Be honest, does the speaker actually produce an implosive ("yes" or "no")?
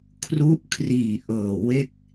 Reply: no